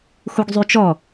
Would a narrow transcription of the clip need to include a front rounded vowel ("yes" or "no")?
yes